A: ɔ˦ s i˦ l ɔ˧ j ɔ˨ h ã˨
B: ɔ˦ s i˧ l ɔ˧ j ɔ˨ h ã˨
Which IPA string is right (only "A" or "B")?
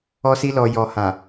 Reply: A